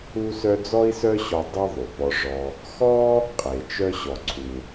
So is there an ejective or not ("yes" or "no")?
yes